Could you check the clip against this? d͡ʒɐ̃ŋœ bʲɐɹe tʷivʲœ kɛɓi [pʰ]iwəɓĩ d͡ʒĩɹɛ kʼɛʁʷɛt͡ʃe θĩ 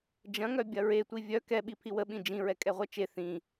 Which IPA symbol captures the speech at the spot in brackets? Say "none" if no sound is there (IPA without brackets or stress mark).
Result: pʰ